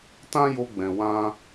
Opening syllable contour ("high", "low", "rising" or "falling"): high